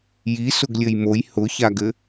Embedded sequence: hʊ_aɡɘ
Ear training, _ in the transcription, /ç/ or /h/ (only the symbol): ç